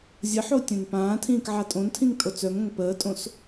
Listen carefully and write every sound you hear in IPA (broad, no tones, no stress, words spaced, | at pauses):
zʲəħo tʲœ̃npãːtʰĩːk ʕatʼõntʰĩŋ tʼot͡sœŋõŋ pəːtʼõs